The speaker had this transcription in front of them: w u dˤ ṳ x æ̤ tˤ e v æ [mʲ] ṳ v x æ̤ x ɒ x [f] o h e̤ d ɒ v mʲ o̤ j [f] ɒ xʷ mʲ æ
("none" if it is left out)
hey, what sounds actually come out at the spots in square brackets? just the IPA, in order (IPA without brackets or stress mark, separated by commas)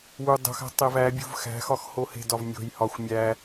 bʲ, h, h